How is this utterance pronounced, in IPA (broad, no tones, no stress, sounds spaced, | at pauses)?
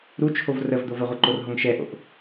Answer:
ɾ u t͡ʃʰ o v r ə v d̪ o v ə ʁʷ ɤ ǃ o r ɦ o ŋ ʃ ɛ ʔ o̰ ʔ